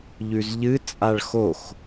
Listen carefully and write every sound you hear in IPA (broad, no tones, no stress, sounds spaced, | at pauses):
ʎ ʉ z ʎ ɨ t͡sʼ a ɭ x o x